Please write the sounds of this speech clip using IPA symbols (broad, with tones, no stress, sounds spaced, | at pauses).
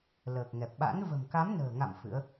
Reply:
l əː˨˩ k̚ ŋ ɛ˨˩ p̚ ɓ a̰˧˥ n v ə̤˨˩ m k a˨˦ m n ə̤ː˨˩ ŋ a̰˧˨ m f ɨ̰˧˥ ə̯